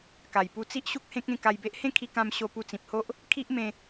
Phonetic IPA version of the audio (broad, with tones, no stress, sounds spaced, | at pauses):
k a˨˩ j p u˧ t͡s i˦ ʔ ɕ u˦ k̚ h ẽ˦ k̚ ẽ˥˧ k a˧ j b e˦ ʔ h ẽ˥˧ kʰ i˧ k ã˧ m ɕ o˧ p u˧ t͡s ĩ˨ p̚ h o˦ ʔ | kʰ i˦ ʔ m ẽ˧